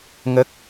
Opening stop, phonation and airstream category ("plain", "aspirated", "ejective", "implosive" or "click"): plain